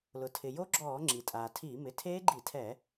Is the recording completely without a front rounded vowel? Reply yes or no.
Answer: yes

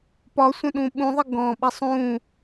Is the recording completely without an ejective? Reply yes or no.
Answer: yes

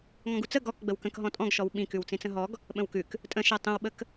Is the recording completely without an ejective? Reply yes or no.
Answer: no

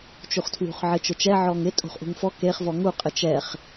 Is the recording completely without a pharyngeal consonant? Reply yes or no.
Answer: no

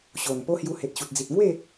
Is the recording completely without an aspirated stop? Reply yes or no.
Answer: yes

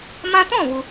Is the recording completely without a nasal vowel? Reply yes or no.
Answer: no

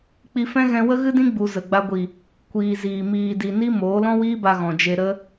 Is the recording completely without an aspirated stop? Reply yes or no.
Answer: yes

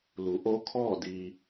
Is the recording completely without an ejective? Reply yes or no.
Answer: yes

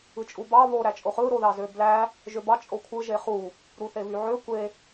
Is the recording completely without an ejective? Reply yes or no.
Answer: no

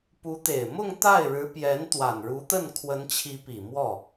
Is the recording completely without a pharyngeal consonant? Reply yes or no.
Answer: yes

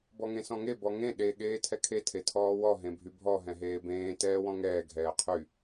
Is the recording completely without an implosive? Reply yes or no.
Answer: no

